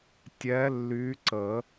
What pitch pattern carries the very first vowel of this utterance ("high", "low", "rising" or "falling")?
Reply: rising